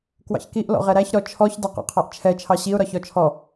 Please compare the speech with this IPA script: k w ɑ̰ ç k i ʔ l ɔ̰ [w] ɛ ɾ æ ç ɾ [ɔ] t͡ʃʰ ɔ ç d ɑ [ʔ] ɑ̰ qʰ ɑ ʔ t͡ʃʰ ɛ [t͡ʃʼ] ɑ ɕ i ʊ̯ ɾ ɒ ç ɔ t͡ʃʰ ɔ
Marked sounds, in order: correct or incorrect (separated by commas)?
incorrect, correct, incorrect, incorrect